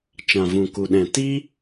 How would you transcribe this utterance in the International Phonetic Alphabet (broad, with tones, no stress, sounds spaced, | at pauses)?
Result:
t͡ʃ ã˨ v ũ˨ k u˨ ɗ ɛ̃˨ t i˦